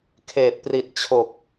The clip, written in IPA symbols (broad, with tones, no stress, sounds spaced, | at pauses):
kʰ eː˨˩ t̚ p r i˨˩ t̚ t͡ɕʰ o˨˩ k̚